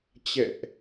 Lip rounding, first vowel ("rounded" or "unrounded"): unrounded